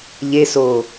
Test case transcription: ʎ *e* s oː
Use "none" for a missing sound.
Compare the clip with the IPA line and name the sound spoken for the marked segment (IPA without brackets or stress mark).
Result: e